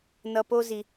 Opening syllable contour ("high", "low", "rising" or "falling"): low